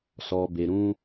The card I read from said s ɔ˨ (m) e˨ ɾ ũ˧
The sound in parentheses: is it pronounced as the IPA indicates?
no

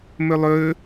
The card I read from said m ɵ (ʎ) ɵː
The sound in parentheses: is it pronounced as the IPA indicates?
no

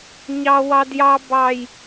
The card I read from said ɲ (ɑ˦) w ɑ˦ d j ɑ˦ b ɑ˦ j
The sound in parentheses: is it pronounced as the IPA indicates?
yes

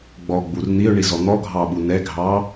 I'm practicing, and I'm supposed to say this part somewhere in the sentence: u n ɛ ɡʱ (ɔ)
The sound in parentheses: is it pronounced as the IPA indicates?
no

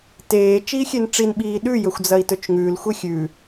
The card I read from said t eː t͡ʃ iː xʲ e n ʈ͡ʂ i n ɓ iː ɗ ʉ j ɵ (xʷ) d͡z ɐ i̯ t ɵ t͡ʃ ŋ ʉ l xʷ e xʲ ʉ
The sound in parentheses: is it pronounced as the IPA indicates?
yes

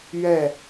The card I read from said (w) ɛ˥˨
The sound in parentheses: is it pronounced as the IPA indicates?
no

